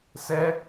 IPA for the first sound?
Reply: s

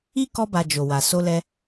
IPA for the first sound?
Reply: i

